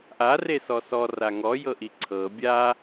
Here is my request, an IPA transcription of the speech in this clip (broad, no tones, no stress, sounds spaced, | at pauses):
ʔ a r e s ɔ s ɔ r a ŋ ɔ j ɤ ʔ i ǀʰ ɤ bʲ a